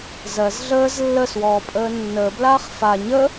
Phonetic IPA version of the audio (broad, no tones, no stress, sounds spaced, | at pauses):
z ɜ z ɮ əː z lː ə s w ɔː pʼ əː nː əː b l aː χ f a ɲ ə